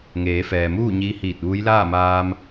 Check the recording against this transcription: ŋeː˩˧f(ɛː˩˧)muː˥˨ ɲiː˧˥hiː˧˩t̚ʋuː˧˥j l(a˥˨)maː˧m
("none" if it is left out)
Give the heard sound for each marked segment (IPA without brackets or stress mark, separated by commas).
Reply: ɛː˩, aː˥˨